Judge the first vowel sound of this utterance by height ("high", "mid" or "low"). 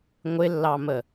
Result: high